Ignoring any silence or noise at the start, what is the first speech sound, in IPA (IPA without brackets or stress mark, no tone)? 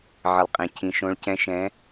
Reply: ʕ